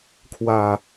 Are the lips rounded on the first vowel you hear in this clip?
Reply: no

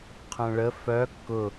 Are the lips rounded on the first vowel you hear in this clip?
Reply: yes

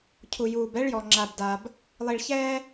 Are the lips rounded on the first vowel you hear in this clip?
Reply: yes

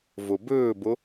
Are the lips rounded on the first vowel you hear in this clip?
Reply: yes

